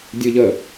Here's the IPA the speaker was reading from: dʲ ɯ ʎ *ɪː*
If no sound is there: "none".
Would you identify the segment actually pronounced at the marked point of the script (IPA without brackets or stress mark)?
əː